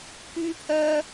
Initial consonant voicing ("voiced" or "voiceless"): voiceless